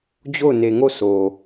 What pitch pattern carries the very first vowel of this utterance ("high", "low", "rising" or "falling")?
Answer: falling